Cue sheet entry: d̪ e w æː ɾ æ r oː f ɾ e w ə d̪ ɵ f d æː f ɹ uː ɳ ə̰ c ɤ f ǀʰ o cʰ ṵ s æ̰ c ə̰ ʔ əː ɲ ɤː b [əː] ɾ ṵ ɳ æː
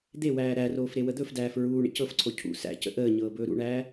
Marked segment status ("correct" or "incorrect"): incorrect